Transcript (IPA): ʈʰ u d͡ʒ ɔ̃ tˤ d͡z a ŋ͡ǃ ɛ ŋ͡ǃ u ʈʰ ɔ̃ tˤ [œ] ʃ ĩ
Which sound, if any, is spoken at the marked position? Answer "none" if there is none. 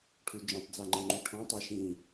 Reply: ɛ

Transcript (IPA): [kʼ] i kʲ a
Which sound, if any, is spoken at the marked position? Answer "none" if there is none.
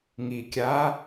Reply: ŋ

